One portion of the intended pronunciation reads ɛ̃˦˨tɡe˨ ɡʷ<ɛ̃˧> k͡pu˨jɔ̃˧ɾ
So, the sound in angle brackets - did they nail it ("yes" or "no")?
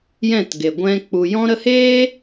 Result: yes